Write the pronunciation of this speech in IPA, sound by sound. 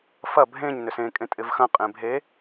f ɐ bʱ ẽ ɲ n ʏ s ẽ kʼ ẽ tʼ ɪ v x ɐ̃ qʼ ẽ bʱ e

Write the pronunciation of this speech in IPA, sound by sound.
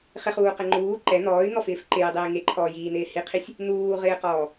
χ ɪ χ uː q ɛ ŋ͡ǃ uː ǃ ɛ n̪ ɔː y̯ n̪ ɔ f ɪː f ǃ ɪ j i dˤ iː ŋ e ǃʰ ɔː j iː n̪ ɪː h i qʰ i sʲ | n̪ uː ʁ ɪː q ɔː

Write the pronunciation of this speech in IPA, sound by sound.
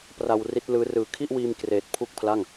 p r a˧ w r i˦˥ t̚ l ɯː˦˥ r ɯː˨˩ kʰ i˥˩ ʔ w iː˧ m k r eː˨˩ t̚ pʰ u˥˩ k̚ pʰ l a˥˩ ŋ

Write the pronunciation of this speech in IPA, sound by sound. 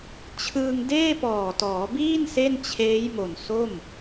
t͡ɕʰ ɯː˧ ŋ d eː˥˩ p ɔː˨˩ t ɔː˩˦ b iː˥˩ n s e˥˩ n t͡ɕʰ eː˦˥ j m o˨˩ n s o˥˩ m

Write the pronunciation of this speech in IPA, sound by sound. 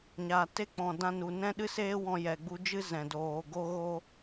ɲ aː˨ t e˦ k͡p ɔ̃˨ d ã˧ n u˨ n ɛ̃˦ ɗ ɨ˦ s eː˦ w ɔ̃˧ j ɛ˨ ɡ͡b u˧ d͡ʒ ɨ˦ z ɛ̃˨ d oː˨ ɡ o˧ ɣ o˧

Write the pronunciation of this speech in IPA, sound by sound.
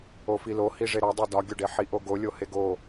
o f i l o h i ʐ e ɾ ɒ dˤ e d ɒ ɡʲ o ɖ e ħ i ʔ o ɡ o lʲ o h e ɡ o

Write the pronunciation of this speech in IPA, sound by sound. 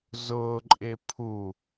z ʊː ǃʼ ɪː pʰ u

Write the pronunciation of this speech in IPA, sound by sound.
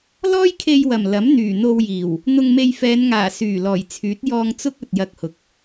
l ɔː˥ j kʰ e˧ j w ɐ˨˩ m l ɐ˨˥ m n̪ yː˨˩ n̪ o˧ w j iː˨˩ w | n̪ ʊ˧ ŋ m e˧ j f ɛː˨˧ n ŋ aː˨˩ s yː˨˩ l ɔː˨˩ j t͡sʰ yː˨˥ t̚ j ɔː˧ ŋ t͡s ʊ˥ k̚ ɵ˨ t̚ j ɐ˧ k̚ h ʊ˨ k̚

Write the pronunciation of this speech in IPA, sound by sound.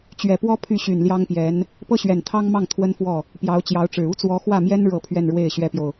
t͡ɕ ɥ ɛ˨˩ p w ɔ˥ pʰ y˥˩ ɕ y˨˩ n l j ɑ˥ ŋ p j ɛ˧˥ n | p ɤ˥ ɕ ɥ ɛ˨˩ n t̪ʰ ɑ˥ ŋ m ɑ˥˩ ŋ t̪ʰ w ə˥ n f w ɔ˥˩ | p j ɑ˧˥ ʊ̯ t͡ɕ j ɑ˧˥ ʊ̯ ʈ͡ʂ ɻ̩˨˩ u˥ t͡s w ɔ˧˥ x w ä˥˩ m j ɛ˥ n ɻ ɤ˥˧ pʰ ɥ ɛ˥˧ n ɻ w e˥˩ ɪ̯ ɕ ɥ ɛ˥ p j o˨ ʊ̯

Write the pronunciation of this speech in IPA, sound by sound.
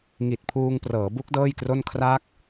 ŋ i˨˩ t̚ pʰ uː˧ ŋ p r ɤː˩˦ b u˦˥ k̚ d ɤː˥˩ j k r o˥˩ n kʰ r a˦˥ k̚

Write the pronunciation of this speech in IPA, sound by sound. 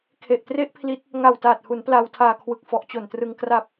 kʰ e˨˩ ʔ t r e˥˩ ʔ pʰ l i˦˥ t̚ | ŋ a˨˩ w t aː˨˩ t̚ h u˩˦ n p l a˧ w tʰ aː˧ kʰ w ɯ˨˩ k̚ f ɔ˨˩ ʔ t͡ɕ o˨˩ n t r ɯ˧ ŋ k r a˨˩ p̚

